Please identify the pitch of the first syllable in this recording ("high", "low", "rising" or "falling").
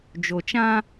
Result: low